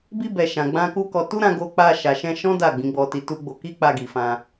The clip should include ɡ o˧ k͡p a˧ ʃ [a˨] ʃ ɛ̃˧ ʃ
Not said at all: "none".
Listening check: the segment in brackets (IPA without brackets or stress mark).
a˨